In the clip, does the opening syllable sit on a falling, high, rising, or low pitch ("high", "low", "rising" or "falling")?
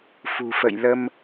low